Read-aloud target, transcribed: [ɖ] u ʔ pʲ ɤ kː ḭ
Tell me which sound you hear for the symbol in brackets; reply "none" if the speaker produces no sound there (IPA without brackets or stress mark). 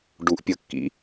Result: ɖ